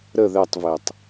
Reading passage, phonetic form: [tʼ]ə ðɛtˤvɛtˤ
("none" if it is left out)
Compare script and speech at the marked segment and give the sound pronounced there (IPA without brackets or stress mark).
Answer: ɾ